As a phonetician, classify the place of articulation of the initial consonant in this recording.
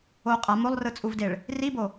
uvular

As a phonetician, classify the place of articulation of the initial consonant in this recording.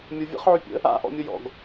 labial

